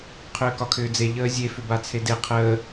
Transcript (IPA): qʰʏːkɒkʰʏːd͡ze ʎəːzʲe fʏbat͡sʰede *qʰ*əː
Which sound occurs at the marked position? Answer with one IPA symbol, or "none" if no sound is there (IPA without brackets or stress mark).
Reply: qʰ